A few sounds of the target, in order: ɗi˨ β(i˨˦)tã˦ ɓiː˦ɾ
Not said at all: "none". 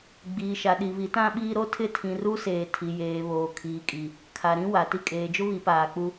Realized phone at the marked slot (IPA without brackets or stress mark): i˨˦